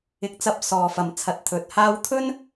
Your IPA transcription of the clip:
ɪ˨˥ k̚ t͡s ɐ˧ p̚ s ɔː˨ f ɐ˨ m t͡sʰ ɐ˨ t̚ t̪ʰ ɵ˨ t̚ h aː˥ w t̪ʰ ɵ˥ n

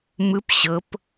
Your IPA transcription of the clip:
m ɯ p ɕ ɤ p

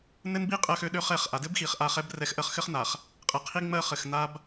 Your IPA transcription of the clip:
n ɘ˦ n b i˦ qʼ ɜ˦ x ø˦ ɗ ø˦ χ ɛ˦˨ χ ʔ a˨ d ɘ˦ b x i˨ χ ʔ a˦˨ χ ɛ˦ b r ɛ˦ x ʔ ɜ˦ χ x ɘ˦ χ n a˨ χ | qʼ ɘ˨ qʰ i˦ ŋ͡m ɜ˦ χ ɘ˨ x n a˦ b

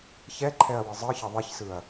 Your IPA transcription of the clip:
ç ɛ ǃʰ ɛ ɐ̯ w ɯ zˤ ɯ ç ʌ ðˤ i ç s ɯ ɐ̯

